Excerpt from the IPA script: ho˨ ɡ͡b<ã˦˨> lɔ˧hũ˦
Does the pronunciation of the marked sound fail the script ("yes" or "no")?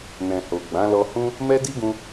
yes